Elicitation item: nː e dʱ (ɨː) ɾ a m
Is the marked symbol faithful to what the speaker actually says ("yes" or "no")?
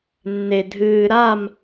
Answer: yes